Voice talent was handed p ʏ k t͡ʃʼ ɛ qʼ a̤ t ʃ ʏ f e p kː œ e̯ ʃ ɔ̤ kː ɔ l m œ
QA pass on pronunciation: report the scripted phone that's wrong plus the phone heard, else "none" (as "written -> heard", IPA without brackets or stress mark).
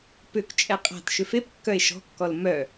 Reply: none